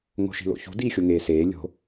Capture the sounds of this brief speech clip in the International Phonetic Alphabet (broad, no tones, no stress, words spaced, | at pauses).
ŋo̤ʃi̤lo̰çṳ diːxʲoŋeːseː lʲo̤